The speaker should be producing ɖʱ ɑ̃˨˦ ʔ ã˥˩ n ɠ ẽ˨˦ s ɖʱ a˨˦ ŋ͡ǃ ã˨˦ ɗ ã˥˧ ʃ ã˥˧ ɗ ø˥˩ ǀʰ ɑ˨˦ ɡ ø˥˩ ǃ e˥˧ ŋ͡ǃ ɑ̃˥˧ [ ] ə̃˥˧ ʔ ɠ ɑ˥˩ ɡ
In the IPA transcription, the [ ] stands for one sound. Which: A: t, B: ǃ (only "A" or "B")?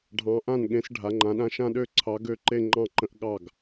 B